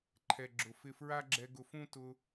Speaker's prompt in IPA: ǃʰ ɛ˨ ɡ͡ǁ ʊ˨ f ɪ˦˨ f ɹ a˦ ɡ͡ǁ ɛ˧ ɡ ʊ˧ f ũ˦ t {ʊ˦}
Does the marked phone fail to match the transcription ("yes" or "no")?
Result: yes